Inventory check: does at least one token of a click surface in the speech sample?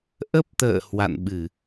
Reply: no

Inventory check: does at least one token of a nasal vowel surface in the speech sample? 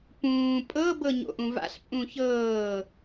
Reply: yes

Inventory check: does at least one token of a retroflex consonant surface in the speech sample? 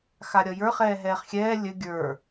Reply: no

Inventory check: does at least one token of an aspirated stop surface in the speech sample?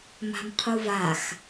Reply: yes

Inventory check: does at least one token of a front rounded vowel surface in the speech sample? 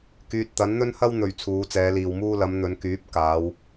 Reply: yes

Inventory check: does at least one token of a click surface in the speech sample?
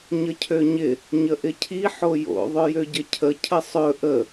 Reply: no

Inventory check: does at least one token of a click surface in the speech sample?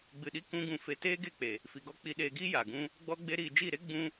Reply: no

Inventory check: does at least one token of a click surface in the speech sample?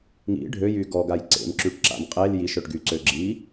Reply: yes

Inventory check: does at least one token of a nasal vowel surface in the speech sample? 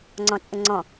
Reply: yes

